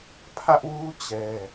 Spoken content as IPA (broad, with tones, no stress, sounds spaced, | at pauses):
pʰ ä˦ ʔ w u˦ t͡ɕ ɛ˦